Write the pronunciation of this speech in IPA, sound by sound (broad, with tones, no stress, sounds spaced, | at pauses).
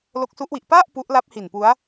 l o˦˥ k̚ s u˦˥ ʔ w i˨˩ ʔ p a˥˩ ʔ p u˦˥ ʔ l a˦˥ p̚ h i˨˩ n p u˦˥ a̯